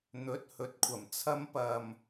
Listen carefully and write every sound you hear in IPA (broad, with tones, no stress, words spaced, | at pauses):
n̪ɵ˨˥t̚hɵ˨t̚kʷʰɐ˨˩m t͡sʰɐ˨˧mpɐ˨˩m